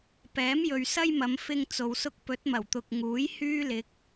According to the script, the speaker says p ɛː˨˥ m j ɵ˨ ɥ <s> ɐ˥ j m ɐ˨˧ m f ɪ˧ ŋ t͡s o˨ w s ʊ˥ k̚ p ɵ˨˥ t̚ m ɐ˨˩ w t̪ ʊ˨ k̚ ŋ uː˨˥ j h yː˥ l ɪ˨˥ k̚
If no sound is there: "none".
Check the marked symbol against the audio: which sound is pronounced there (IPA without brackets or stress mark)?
s